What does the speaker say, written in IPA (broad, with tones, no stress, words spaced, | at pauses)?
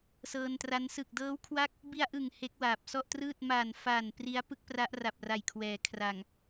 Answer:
sɤː˧ntra˦˥n sɯ˨˩k̚dɤː˦˥wkʰwa˦˥k̚ | bi˧a̯ʔɯ˨˩ŋ he˦˥k̚waː˨˩p̚sɔ˥˩ʔtrɯː˥˩t̚ ma˨˩nfa˨˩n pri˦˥a̯ pɯ˥˩k̚pra˦˥ʔra˨˩p̚ ra˨˩jkʰwɛː˩˦ kʰra˨˩ŋ